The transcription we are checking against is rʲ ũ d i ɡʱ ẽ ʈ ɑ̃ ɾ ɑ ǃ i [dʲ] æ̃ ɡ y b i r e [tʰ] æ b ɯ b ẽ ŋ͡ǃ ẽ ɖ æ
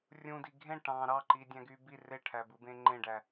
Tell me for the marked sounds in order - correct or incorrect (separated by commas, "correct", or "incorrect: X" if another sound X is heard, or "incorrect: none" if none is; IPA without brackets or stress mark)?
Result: correct, incorrect: ʈʰ